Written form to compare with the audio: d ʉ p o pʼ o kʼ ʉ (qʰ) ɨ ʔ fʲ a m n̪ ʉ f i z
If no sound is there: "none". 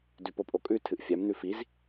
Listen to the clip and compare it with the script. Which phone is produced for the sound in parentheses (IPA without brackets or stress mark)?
tʰ